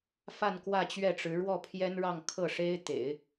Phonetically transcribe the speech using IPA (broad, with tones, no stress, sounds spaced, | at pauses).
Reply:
f a˥˧ n k w ä˥˧ t͡ɕ ɥ ɛ˥˩ ʈ͡ʂ ɻ̩˧˥ ɻ w ɔ˥˩ pʰ j ɛ˥ n ɻ ɑ˥˧ ŋ kʰ ɤ˥˩ ʂ e˥ ɪ̯ t̪ ḛ˨˩˦ ɪ̯